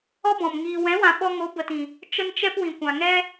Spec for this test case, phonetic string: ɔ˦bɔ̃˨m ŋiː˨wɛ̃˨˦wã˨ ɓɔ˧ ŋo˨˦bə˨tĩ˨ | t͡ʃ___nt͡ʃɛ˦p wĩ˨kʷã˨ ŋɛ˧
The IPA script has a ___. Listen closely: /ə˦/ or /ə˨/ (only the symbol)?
ə˦